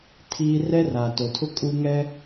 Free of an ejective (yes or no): no